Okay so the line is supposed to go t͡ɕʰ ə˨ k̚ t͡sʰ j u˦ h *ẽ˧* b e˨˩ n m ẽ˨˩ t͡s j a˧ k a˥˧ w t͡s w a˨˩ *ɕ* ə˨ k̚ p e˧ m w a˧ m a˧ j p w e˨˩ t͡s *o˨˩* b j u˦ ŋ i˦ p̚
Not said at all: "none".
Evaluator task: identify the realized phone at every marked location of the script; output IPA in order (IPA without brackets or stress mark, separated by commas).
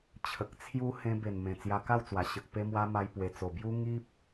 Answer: ẽ˧, ɕ, o˨˩